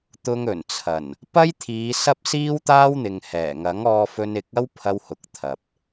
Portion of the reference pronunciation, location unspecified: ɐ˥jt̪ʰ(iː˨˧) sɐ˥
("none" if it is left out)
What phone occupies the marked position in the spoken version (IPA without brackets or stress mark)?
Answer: iː˨˧